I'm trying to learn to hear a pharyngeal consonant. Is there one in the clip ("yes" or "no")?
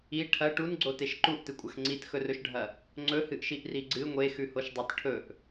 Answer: no